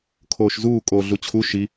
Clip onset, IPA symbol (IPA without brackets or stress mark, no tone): kʰ